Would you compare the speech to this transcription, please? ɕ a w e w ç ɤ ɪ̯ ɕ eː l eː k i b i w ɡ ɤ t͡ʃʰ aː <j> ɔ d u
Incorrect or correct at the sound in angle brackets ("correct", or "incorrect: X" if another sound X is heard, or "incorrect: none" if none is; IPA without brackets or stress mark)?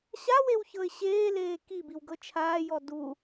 correct